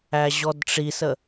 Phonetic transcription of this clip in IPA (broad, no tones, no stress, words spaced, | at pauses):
æʑɔdʈ͡ʂisə